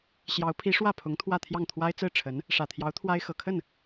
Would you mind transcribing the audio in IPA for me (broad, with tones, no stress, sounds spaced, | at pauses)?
ɕ j ɑ˧˥ ʊ̯ pʰ i˧˥ ʂ w ä˥˩ pʰ ʊ˧˥ ŋ t̪ʰ w ä˥˧ t̪ʰ j ɑ˥˩ ŋ t̪ʰ w a˥ ɪ̯ t͡s ɹ̩˥˩ ʈ͡ʂʰ ə˧˥ n | ʂ ä˨˩ t̪ʰ j ɑ˧˥ ʊ̯ t̪ʰ w a˥ ɪ̯ x ɤ˨˩ kʰ ə˥˩ n